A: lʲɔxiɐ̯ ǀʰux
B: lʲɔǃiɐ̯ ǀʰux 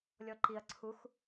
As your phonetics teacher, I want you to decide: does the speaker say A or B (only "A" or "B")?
B